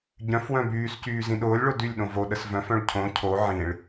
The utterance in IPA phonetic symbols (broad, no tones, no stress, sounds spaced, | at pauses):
ɟ œ̃ f w œ̃ b yː s c yː z ĩ ɗ ʊː lʲ ɭ o d y lʲ ɗ õ v o ɗ ə s v œ̃ f œ̃ ɭ cʰ õ cʰ o ʕ ĩ ɭ